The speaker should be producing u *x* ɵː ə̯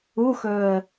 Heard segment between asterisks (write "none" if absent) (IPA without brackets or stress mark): x